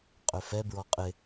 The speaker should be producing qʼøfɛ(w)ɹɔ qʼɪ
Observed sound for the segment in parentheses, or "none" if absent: b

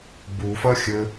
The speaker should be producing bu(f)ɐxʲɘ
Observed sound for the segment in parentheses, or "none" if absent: f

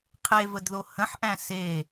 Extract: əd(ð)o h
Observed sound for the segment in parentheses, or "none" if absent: ð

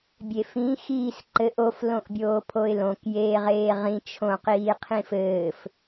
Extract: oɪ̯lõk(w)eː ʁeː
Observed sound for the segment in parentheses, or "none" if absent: j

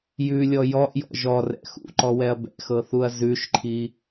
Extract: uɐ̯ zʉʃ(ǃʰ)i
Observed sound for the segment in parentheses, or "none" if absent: ǃʰ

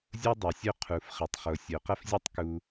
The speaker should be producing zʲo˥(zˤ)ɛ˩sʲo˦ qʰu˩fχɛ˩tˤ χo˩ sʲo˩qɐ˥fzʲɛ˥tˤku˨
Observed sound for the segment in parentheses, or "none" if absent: dˤ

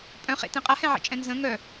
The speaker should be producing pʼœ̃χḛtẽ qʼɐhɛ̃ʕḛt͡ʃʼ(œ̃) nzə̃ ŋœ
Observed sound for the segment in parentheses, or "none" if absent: ɛ̃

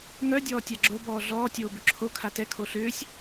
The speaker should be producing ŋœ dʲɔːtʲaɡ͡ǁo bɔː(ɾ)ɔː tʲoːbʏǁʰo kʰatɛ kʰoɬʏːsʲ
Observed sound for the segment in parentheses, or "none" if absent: ɮ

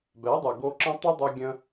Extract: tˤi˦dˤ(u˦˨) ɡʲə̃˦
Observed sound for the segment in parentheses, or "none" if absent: u˧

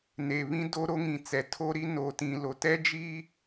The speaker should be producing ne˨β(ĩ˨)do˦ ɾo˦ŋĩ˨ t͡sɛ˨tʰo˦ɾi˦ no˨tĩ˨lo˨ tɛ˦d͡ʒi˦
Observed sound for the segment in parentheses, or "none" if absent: ĩ˦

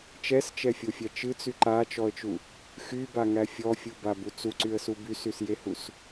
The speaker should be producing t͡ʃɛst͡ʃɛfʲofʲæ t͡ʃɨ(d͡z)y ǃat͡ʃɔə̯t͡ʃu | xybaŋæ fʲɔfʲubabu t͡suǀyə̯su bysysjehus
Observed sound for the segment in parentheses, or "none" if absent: t͡s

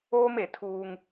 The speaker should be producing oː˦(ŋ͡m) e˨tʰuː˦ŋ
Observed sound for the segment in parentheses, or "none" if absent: m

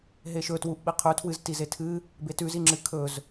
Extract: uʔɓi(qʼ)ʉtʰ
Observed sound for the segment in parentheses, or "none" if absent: qʰ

